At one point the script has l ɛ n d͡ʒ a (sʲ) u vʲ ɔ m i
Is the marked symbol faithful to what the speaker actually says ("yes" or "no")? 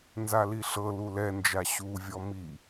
no